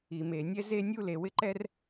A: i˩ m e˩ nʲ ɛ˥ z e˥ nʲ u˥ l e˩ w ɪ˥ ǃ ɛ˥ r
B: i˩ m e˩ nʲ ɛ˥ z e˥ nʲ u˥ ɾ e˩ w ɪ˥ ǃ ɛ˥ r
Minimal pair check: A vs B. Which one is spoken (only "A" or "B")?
A